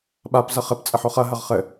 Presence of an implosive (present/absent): present